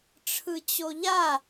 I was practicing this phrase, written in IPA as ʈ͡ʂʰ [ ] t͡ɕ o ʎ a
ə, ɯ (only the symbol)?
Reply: ɯ